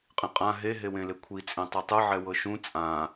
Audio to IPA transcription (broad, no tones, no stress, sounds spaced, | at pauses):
qʼ ĩ qʼ ã ɦ e ɦ e w ẽ l e kʷʰ i t͡sʼ ẽ tˤ u tˤ ɯ ʕ ɛ w ɤ ʃ ũ t͡sʼ ã